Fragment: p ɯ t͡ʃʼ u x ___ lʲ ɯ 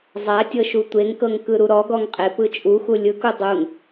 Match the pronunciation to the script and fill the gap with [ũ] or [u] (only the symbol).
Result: u